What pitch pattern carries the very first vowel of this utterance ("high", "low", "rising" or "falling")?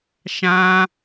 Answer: high